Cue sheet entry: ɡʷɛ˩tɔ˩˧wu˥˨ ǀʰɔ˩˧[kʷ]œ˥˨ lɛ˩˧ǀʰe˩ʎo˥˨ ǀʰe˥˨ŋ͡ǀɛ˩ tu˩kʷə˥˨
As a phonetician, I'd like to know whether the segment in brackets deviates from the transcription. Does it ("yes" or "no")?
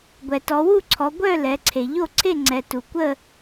yes